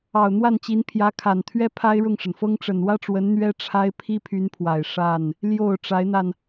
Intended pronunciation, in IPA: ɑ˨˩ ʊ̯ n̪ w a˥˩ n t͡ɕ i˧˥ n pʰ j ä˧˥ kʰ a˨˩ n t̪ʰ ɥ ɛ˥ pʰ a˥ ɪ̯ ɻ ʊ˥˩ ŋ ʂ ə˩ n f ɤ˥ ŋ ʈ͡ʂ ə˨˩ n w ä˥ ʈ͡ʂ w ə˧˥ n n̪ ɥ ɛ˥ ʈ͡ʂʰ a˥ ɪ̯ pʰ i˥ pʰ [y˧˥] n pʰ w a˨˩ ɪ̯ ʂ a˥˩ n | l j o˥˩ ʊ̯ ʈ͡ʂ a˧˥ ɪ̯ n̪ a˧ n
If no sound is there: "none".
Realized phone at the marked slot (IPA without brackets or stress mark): y˧˥